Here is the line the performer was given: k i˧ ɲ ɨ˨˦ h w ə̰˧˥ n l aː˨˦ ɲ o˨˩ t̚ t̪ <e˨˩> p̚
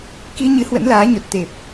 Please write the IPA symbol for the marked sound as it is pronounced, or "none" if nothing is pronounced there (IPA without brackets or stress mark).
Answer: e˨˩